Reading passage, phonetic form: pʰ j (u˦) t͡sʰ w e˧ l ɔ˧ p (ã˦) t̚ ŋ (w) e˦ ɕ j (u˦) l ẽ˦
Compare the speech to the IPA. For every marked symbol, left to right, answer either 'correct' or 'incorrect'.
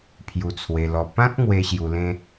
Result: incorrect: u˧, correct, correct, incorrect: u˧

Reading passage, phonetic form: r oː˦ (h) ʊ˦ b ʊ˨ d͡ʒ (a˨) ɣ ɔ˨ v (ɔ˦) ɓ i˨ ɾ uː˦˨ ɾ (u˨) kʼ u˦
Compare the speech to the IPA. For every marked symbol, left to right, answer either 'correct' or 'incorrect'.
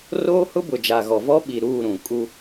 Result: correct, correct, correct, incorrect: ũ˨

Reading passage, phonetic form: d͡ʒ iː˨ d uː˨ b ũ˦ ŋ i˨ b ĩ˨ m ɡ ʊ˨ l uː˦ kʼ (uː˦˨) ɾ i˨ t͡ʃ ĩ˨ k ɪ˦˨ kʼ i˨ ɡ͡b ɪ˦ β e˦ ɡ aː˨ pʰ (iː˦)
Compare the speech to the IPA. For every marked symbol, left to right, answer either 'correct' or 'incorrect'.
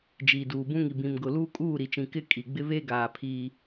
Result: correct, correct

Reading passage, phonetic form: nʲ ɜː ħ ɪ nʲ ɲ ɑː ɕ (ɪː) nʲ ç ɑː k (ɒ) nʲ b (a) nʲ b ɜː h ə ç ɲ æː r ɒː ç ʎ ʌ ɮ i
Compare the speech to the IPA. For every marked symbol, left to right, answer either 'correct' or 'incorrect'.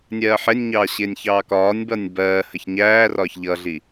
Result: correct, incorrect: ɒː, incorrect: ʌ

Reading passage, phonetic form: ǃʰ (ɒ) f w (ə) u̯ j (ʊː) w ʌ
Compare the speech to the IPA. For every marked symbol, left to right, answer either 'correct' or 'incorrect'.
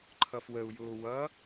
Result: incorrect: ʌ, correct, correct

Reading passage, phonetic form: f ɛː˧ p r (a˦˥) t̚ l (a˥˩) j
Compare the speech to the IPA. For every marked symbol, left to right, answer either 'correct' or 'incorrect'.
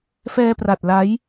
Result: incorrect: a˨˩, incorrect: a˦˥

